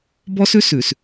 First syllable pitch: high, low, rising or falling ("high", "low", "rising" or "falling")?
high